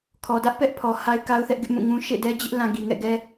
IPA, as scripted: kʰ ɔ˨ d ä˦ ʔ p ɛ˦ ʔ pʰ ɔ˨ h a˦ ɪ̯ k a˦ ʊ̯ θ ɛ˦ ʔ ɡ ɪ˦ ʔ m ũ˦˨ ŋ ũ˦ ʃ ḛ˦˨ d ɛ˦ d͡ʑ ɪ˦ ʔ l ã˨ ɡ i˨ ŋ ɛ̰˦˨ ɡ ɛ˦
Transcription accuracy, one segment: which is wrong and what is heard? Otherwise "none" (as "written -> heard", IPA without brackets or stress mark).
none